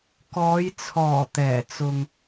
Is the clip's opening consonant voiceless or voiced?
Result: voiceless